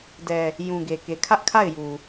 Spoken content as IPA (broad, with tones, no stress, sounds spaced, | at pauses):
d ɛ˨ | j ũ˨ ɡ e˨ k e˨ kʰ ä˦ ʔ kʰ a˦˨ ɪ̯ j u˨